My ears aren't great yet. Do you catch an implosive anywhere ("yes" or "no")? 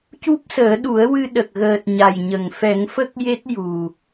yes